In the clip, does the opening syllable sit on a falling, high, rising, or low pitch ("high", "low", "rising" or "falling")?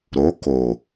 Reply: rising